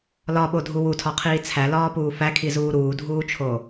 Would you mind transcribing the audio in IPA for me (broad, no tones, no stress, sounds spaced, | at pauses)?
l ɒ ɓ o dʱ u w u tʰ ɒ qʰ iː t͡sʰ æ l ɒː p uː f æ kʰ i z uː ɾ uː dʱ uː t͡ʃʰ o